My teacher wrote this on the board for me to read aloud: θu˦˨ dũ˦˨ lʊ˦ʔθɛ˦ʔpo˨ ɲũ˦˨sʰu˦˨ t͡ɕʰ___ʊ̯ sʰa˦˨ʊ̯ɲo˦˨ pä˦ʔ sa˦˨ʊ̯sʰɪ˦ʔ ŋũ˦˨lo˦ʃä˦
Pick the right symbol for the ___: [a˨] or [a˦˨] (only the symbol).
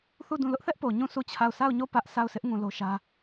a˦˨